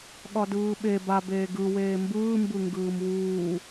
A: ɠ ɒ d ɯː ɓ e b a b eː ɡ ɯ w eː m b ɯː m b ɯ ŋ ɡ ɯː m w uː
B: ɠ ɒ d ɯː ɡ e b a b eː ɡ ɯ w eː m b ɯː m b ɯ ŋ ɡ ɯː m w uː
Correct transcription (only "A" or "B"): A